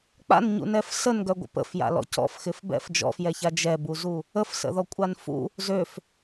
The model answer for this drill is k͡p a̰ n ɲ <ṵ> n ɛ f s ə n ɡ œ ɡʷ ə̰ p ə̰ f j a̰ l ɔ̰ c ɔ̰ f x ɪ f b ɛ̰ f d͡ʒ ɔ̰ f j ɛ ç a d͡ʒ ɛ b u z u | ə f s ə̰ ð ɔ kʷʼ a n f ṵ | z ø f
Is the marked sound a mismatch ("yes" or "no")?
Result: no